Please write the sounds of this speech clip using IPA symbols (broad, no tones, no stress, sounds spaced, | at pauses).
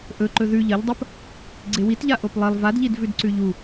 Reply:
ʔ ɵ ǃ ɵ ð ʉ ʎ ɐ ʎ dˤ ɐ p | ɡ͡ǀ e w i t ʎ a ʔ o p lˠ e lˠ v a d ʎ i d v ʉ d ǀ ʉ ʎ u